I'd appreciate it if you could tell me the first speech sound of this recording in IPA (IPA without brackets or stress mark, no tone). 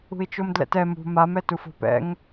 ṳ